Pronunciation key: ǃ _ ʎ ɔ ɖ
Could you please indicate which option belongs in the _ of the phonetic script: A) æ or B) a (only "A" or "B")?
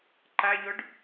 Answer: B